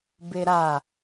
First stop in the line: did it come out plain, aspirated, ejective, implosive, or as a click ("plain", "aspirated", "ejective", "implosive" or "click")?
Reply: plain